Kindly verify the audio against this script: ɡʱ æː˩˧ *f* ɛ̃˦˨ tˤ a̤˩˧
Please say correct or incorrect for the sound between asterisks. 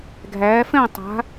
correct